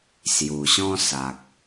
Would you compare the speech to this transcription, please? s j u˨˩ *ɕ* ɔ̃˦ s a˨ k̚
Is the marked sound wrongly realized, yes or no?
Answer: no